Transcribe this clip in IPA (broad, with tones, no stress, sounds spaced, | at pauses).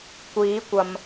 kʷ iː˨˥ kʷ ɐ˨ m